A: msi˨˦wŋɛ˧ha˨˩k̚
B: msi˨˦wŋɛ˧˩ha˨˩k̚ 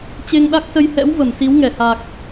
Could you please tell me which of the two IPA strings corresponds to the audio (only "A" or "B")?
B